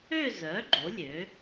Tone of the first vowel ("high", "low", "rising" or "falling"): falling